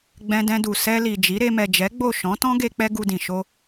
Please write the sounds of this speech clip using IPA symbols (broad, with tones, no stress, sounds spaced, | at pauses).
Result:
ɡ͡b ɛ̃˧ d ɛ̃˧ d u˨ s ɛ˧ l i˨ d͡ʒ i˨˦ ɾ e˧ m ɛ˨ d͡ʒ ɛ˨˦ ɡ͡b o˦˨ ʃ ɔ̃˨˦ t ɔ̃˦ ɡ e˧ k͡p ɛ˦ ɡ u˧ d ĩ˨ ʃ o˧